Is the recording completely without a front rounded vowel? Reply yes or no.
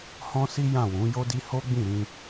yes